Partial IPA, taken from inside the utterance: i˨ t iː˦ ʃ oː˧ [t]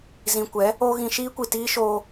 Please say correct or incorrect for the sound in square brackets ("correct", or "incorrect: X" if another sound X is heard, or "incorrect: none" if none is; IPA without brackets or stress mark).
incorrect: none